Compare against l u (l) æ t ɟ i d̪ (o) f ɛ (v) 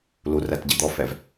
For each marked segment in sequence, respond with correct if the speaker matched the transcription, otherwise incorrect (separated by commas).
incorrect, incorrect, correct